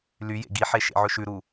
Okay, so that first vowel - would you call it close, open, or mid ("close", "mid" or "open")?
close